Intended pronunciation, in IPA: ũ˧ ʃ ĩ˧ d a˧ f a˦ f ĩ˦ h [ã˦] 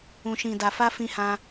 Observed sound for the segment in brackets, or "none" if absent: ã˦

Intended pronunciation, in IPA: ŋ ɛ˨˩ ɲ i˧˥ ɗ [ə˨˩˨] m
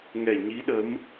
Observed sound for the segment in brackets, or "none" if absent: ə˧˥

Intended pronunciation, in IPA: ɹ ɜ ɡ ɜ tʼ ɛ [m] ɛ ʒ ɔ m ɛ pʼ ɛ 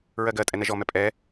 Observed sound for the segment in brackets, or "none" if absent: n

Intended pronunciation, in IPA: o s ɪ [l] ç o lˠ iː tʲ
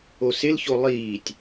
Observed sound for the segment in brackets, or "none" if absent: l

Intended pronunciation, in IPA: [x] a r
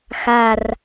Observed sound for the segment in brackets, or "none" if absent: x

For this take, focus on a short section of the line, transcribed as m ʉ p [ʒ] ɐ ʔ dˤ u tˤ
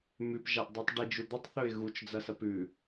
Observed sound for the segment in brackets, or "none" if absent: ʒ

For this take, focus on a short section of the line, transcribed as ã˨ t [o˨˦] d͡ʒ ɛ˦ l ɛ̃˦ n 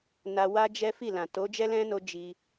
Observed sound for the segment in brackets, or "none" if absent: o˨˦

